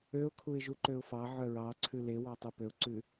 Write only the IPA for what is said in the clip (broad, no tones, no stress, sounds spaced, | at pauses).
ø ʊ̯ kʰ u ɪ̯ ʒ u ǃ ø ʊ̯ f ɑ ʕ œ ɹ ɑ ǀʰ ʉ l e w ɑ tˤ u p ø ʊ̯ ǀ ʉ